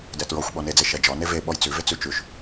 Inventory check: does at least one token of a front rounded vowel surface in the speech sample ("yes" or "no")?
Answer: no